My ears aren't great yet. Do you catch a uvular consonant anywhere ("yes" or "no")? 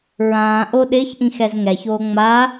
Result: no